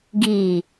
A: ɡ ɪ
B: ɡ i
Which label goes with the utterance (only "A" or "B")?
B